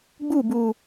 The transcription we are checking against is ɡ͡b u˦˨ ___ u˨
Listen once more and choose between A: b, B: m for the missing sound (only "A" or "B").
A